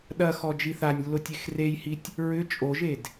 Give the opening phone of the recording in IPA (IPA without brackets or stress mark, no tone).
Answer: ɗ